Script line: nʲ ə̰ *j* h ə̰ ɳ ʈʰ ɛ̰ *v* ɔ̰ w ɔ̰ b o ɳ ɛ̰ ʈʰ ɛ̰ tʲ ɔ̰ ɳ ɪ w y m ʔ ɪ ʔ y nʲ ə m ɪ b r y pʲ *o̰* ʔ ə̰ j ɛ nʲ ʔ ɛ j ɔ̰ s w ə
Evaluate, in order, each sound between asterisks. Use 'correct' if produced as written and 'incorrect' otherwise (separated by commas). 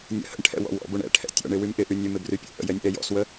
incorrect, incorrect, correct